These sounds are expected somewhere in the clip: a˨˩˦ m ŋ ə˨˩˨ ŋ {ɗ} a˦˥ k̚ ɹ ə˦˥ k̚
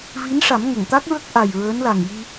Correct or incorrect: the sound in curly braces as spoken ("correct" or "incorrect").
incorrect